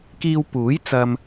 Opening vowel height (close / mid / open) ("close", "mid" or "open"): close